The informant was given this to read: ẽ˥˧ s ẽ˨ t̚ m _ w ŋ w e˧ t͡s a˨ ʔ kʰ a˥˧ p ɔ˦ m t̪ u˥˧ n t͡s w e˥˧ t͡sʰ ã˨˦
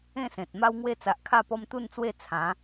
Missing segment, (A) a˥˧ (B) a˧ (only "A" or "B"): B